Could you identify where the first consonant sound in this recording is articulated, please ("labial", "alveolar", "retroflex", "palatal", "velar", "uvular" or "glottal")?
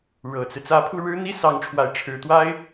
retroflex